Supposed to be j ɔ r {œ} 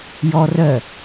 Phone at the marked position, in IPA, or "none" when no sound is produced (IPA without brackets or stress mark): œ